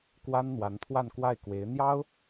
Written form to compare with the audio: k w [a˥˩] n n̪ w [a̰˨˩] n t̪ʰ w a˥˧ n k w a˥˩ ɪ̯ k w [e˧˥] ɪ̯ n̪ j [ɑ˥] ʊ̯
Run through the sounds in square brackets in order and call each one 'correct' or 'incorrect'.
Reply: incorrect: a˥, incorrect: a˧˥, correct, correct

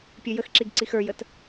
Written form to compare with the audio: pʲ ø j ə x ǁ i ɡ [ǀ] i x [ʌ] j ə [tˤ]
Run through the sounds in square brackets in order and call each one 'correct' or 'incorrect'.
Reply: correct, incorrect: ə˞, incorrect: t

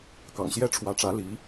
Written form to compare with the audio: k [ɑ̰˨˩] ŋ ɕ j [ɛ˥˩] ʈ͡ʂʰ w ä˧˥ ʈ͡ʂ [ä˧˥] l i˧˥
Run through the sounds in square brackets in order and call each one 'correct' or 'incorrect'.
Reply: correct, incorrect: ɛ˥, correct

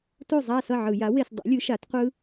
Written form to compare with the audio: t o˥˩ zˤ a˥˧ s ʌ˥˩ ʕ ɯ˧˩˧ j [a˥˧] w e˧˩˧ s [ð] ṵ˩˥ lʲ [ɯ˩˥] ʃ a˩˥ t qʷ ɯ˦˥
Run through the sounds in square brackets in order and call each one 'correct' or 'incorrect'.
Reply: incorrect: a˩˥, incorrect: dˤ, correct

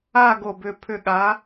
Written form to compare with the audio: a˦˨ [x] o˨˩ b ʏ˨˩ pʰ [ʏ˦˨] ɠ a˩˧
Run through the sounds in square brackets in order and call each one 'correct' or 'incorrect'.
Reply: incorrect: ɡ, incorrect: ʏ˨˩

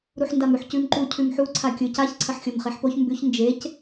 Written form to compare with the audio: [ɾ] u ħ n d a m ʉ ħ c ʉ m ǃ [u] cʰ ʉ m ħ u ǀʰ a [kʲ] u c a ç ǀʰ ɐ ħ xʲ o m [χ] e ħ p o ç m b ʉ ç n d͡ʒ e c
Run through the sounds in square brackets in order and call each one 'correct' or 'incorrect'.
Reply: correct, correct, correct, correct

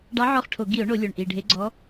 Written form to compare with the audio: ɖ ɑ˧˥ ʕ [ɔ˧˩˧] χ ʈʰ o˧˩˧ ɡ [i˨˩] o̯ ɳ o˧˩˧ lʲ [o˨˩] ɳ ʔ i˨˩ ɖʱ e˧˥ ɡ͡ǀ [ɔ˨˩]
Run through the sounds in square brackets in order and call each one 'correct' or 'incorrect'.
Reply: incorrect: ɔ˦˨, incorrect: i˧˩˧, correct, incorrect: ɔ˧˥

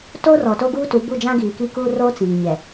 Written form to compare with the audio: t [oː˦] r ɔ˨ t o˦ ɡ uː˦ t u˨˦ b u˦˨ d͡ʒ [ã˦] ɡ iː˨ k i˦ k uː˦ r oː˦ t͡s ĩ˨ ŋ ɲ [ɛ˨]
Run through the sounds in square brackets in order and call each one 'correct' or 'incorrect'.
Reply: correct, correct, correct

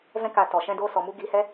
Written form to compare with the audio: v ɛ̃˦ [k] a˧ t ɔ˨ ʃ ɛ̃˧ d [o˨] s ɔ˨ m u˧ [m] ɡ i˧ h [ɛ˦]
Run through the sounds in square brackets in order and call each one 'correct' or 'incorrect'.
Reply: correct, incorrect: o˧, incorrect: none, correct

